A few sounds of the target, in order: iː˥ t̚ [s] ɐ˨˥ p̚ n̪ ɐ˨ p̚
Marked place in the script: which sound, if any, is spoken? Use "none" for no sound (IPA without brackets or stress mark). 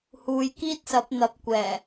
s